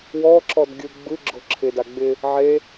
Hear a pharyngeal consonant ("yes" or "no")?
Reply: yes